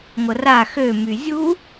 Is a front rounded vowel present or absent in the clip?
present